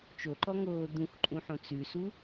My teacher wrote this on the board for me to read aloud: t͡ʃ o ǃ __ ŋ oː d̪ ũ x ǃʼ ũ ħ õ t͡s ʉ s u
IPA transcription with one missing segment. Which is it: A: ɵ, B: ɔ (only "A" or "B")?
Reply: B